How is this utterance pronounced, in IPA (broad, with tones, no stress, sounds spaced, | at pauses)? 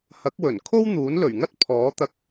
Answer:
h ɐ˨˥ k̚ w ɵ˨˩ n kʰ o˥ w n̪ uː˨˥ n l ɵ˨˩ ɥ ŋ ɐ˥ t̚ pʰ ɔː˨˥ t̪ ɐ˧ k̚